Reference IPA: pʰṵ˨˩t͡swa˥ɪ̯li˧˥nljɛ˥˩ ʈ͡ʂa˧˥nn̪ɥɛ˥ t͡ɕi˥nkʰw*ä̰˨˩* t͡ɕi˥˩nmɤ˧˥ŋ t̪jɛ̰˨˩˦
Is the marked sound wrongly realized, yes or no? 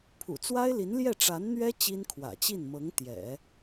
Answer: no